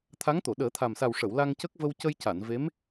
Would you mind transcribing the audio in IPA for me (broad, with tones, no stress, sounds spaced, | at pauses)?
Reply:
t̪ʰ a˧˥ ŋ t̪ o˨˩˨ ɗ əː˨˩˦ t̪ʰ a˨˩ m s a˨˩ w ʂ ə˨˩˨ w l a˧ ŋ c ə˦˥ k̚ v ə˧ w c ə˧ j c a˨˩˨ n v e˧˥ m